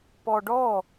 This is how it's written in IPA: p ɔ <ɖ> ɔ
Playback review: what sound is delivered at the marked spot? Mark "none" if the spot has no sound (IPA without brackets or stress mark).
ɖ